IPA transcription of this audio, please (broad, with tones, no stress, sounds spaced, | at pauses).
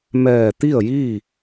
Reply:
m ɛː˧˩ t̪ i˥˨ ə̯ j iː˥˨